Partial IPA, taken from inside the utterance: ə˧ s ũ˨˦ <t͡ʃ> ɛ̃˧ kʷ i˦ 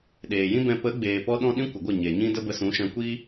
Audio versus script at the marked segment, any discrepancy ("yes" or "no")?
yes